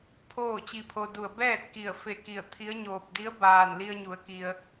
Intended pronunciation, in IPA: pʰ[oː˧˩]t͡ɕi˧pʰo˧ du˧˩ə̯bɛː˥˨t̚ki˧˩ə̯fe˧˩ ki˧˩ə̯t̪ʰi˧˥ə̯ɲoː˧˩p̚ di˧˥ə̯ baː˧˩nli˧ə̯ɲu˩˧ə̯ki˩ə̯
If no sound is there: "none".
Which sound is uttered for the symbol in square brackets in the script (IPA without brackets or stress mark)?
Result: oː˥˨